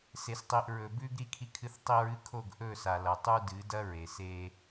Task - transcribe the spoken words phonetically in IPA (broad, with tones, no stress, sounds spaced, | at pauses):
s e˨ s tˤ i˨ ʔ ɹ ɵ˨ b ʉ˦ ɡ ɾ i˦ kʰ i˦ kʰ ɨ˦ θ tˤ i˦ ɹ ɨ˦ kʰ o˦˨ ɡ ʔ ɵ˦˨ s a˨ l ɐ˨ tˤ u˦ d ɨ˨˦ d ɐ˦ ɹ e˨ s e˦